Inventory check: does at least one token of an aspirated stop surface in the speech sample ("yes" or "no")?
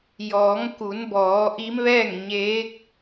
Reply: no